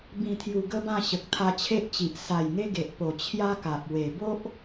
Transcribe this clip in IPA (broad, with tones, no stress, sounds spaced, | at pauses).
b ĩ˨˩ t̪ʰ j u˨˩ ɡ ə˦ b ã˥˧ ɕ ə˨ k̚ t̪ʰ a˧ t͡ɕʰ e˦ ʔ t͡ɕ i˨ ʔ s a˨˩ j ŋ e˧ ɡ e˨ ʔ p o˨˩ t͡ɕʰ j a˦ k a˨ p̚ w e˨˩ b o˦ ʔ